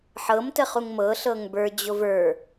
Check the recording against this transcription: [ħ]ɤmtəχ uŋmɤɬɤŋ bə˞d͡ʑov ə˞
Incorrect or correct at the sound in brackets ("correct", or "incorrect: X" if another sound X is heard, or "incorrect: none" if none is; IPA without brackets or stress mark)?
correct